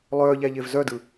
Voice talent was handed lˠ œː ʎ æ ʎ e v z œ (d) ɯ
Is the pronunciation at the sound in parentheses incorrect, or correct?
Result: correct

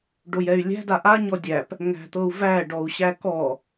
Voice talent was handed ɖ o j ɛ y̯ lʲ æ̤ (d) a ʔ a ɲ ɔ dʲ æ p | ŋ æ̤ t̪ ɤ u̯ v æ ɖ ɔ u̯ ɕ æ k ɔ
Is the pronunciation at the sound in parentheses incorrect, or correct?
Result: correct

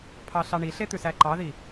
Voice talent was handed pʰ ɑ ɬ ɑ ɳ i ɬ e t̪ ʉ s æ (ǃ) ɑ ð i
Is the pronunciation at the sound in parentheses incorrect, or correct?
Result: correct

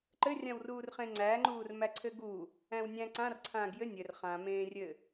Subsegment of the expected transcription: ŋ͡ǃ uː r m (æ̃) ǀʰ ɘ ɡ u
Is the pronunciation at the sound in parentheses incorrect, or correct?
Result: incorrect: æ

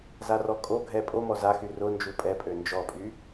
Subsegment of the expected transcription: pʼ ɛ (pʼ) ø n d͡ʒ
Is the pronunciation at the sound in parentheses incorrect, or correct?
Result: correct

